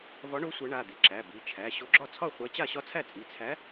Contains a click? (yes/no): yes